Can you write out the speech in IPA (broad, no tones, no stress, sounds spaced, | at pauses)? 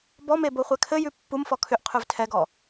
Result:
b ɔ m e b o χʷ ɛ kʰ ɘ j ʉ pː u m f ɔ kʰ ʏ ʔ qʰ ʉ v tʰ ɛ ɡ ɔ